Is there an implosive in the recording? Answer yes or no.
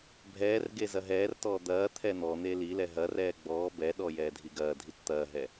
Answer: yes